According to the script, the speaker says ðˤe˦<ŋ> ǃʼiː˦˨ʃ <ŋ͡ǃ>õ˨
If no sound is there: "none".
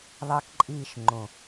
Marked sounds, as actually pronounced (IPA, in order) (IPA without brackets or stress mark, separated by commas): k, ŋ͡ǃ